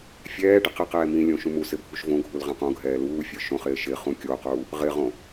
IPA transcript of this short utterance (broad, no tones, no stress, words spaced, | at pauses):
fʲɛː ɖɪqɪqɛː mĩlʲõ ʃũmusɪ bʱuʃvõɡʱul ʁɛ̃qõɡʱɛː luːfʲə˞ ʃõχɪː ʃɪ χũkʲoquː | ʁɪʁõ